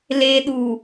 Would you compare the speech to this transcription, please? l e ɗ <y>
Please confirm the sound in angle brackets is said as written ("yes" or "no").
no